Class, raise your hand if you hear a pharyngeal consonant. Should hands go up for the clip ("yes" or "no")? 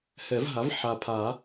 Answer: yes